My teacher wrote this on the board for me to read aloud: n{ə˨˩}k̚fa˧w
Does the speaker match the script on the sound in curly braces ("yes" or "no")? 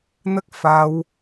no